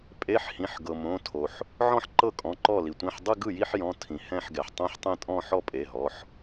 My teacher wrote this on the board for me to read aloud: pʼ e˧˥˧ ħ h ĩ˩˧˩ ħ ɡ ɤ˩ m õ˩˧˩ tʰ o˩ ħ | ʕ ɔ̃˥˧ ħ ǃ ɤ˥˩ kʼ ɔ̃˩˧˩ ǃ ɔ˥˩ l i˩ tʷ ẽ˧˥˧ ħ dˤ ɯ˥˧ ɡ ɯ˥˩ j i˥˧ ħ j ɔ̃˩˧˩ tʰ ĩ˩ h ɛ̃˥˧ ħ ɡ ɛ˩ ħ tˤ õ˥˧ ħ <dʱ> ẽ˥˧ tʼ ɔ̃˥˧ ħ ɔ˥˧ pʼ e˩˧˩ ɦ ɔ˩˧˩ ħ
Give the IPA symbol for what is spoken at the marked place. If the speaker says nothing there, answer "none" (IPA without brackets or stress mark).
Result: tˤ